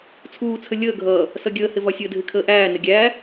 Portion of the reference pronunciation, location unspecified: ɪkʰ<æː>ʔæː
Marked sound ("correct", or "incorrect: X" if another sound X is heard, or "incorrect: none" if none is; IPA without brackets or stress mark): incorrect: əː